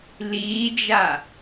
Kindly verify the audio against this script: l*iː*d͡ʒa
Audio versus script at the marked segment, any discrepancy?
no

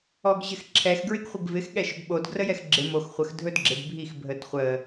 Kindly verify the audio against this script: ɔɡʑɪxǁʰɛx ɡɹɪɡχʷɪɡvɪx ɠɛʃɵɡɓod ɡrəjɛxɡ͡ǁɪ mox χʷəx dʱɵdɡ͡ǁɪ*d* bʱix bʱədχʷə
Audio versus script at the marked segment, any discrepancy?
no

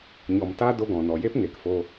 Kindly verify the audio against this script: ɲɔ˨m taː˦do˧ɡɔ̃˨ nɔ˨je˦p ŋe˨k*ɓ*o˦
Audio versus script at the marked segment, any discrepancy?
yes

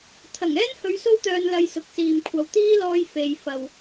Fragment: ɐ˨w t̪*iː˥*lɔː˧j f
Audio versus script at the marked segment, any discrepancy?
no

